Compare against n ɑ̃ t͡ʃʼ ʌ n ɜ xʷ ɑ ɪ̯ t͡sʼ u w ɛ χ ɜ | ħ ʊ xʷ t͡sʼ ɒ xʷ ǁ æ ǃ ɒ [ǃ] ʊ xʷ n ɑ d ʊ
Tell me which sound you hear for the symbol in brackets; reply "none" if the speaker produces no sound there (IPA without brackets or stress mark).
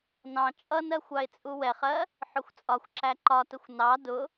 t